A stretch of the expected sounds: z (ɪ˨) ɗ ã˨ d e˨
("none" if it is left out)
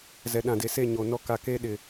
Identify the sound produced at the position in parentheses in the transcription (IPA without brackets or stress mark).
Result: ɛ˨